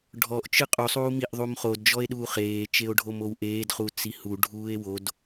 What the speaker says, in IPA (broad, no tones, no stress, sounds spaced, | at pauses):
ɖʱ ɔ ʔ t͡ʃ ɯ qʼ u sˤ uː m i ʔ ðˤ u m χ o d d͡ʒ ɔ e̯ ɗ uː χ eː t͡ʃ e o̯ ɖʱ o m o w ʔ eː d χ u t͡s i h u ɖʱ uː e̯ w o d